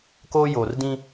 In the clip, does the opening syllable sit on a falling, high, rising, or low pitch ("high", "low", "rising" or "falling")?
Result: high